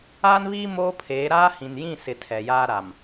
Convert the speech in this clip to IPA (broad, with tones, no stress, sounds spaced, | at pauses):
aː˦ n β iː˦ m oː˦ pʰ eː˨˦ ɾ aː˦ h ĩ˨ n j ĩ˦˨ s ɪ˨ tʰ ɛ˨ j aː˦ ɾ a˨ m